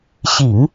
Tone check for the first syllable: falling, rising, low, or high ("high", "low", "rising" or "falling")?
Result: low